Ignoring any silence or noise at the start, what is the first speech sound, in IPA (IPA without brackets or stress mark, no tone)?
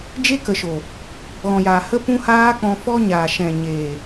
d͡ʒ